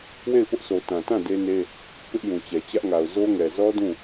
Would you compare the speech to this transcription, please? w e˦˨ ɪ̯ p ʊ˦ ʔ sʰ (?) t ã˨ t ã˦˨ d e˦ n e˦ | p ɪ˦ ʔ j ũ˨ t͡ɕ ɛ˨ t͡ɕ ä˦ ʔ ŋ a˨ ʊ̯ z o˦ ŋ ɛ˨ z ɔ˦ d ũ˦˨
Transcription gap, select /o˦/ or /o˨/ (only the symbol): o˨